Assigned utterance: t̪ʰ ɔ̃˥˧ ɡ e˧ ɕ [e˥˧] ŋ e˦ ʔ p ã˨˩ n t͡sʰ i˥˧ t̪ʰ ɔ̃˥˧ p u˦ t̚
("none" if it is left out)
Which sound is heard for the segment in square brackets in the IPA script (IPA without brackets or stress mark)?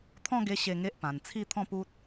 e˥˧